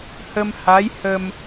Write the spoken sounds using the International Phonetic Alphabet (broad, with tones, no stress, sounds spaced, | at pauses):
h ə˧ m h a˧˥ j h ə˧ m